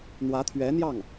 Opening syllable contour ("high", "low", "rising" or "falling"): rising